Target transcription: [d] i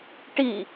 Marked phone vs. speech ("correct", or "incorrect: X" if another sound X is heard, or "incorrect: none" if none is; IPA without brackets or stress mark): incorrect: ʈ